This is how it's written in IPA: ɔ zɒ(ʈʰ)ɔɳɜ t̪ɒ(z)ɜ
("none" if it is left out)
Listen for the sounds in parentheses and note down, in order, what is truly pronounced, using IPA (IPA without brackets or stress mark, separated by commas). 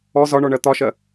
ɳ, ʃ